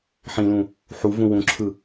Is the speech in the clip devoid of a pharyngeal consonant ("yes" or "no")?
no